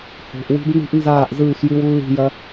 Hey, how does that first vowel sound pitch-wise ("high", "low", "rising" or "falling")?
low